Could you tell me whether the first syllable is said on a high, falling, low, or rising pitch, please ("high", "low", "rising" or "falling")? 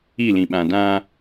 falling